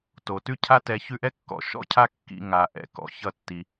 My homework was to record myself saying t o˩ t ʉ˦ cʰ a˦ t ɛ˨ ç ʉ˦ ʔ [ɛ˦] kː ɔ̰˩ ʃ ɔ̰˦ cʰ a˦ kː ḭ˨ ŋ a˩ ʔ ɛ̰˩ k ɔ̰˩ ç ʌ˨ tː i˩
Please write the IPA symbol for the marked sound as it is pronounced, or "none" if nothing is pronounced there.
ɛ˥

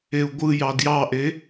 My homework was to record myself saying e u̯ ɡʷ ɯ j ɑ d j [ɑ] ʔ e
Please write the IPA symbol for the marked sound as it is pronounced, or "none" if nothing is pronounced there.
ɑ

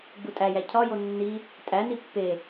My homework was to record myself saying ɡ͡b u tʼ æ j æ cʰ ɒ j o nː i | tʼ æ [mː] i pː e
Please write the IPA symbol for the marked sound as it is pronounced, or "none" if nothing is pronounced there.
n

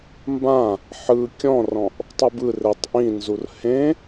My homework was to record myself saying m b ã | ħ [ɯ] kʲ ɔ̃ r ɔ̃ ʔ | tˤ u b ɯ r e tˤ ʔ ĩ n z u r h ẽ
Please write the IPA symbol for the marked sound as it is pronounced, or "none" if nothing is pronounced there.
ɯ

